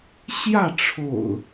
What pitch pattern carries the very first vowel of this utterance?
falling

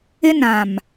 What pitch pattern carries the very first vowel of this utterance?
high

